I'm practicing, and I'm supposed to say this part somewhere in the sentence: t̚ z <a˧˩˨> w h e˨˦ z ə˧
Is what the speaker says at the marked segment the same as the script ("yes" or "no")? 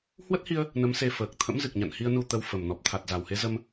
no